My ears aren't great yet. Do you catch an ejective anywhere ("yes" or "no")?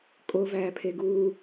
yes